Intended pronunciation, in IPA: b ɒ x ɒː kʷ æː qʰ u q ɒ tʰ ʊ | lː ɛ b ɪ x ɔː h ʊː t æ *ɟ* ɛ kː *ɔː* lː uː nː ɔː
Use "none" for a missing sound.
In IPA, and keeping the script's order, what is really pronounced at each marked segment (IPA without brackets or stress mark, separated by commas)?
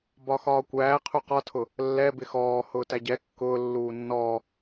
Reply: ɟ, ʊː